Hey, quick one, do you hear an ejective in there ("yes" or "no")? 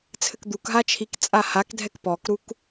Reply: yes